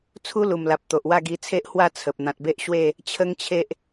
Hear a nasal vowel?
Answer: yes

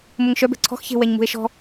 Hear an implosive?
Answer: no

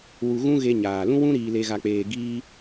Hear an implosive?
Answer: no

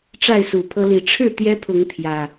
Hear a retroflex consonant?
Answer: yes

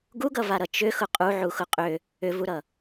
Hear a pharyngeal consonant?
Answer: yes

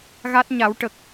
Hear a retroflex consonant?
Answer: yes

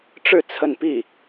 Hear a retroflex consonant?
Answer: yes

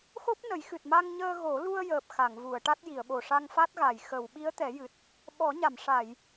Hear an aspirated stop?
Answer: no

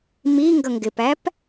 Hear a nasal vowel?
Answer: no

